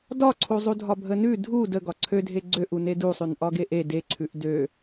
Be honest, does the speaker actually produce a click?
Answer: yes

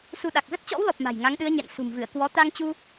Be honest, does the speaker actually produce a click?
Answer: no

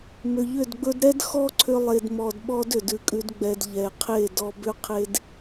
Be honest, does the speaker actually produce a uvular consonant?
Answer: yes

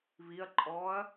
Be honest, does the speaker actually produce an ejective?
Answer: yes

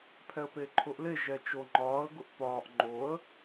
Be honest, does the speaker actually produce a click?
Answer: yes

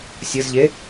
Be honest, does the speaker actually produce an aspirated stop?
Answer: no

